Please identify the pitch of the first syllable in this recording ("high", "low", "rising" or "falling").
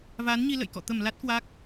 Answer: rising